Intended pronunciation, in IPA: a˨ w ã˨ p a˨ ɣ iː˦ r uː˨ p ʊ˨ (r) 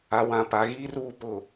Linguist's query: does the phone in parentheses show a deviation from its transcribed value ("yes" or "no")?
yes